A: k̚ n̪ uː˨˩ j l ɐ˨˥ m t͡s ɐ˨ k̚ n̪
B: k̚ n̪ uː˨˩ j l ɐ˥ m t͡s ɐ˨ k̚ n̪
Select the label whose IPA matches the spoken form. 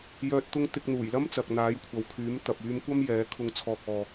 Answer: B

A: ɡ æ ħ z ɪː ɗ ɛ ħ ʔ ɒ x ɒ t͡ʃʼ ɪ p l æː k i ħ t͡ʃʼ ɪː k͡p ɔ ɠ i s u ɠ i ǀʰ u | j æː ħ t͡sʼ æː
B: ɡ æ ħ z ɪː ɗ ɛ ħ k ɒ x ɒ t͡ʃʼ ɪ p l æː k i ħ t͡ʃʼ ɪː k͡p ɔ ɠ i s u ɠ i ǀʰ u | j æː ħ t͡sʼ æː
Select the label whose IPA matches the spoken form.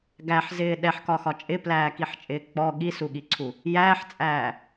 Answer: B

